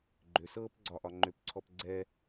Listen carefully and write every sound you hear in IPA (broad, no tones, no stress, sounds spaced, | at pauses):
ɡ͡ǃ ʏ s ɤː p ɡ͡ǀ ɒ ʔ ɒ ŋ͡ǃ ʏ p ǀʰ ɔ p ɡ͡ǀ ɛ